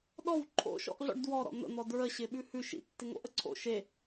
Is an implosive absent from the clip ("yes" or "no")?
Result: no